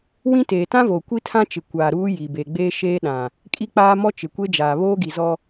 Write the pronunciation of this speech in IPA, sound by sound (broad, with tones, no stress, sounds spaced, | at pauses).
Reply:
w ĩ˦ t eː˨ t ã˦ v oː˨ kʷ i˦ tʰ ã˦ t͡ʃ ɪ˨ kʷ aː˨ ɾ uː˦ j i˨ b e˨ ɡ͡b eː˦ ʃ eː˦ ɗ ã˨ | kʼ i˦ k͡p aː˦ m ɔ˦ t͡ʃ ɪ˨ kʷ e˦ d͡ʒ aː˨ β oː˦ ɡ i˨ z ɔ˦